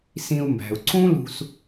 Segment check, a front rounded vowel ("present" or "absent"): absent